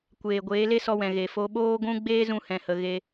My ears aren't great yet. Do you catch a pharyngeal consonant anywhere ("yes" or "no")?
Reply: no